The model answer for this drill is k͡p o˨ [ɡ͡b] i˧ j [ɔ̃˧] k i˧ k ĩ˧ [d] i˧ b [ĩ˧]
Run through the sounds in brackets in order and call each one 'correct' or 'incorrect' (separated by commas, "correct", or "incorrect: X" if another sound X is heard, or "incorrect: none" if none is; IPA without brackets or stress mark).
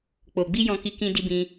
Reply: correct, correct, correct, correct